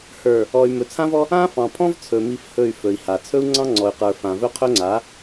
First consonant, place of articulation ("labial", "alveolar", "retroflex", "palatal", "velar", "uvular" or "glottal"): glottal